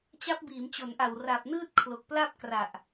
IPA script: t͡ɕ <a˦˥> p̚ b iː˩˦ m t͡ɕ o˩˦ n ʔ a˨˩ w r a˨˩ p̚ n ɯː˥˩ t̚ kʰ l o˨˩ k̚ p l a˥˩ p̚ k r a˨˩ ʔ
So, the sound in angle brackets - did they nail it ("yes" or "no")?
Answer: yes